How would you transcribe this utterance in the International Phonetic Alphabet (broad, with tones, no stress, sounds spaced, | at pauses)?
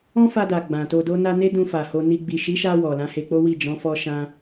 ɔ̃˦ f a˧ d a˨ ɡ͡b ã˨ t o˧ d o˦ n a˦ n e˦ d ũ˧ f a˨ h o˧ n i˧ ɡ͡b i˨ ʃ i˨˦ ʃ a˧ w ɔ˨ l ã˨˦ h e˧ k͡p o˦ w i˦˨ d͡ʒ ɔ̃˨˦ f ɔ˧ ʃ ã˧